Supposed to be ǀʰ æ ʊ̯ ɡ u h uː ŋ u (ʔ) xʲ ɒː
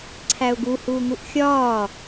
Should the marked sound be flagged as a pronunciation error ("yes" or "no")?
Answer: no